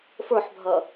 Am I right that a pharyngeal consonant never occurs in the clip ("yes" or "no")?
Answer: no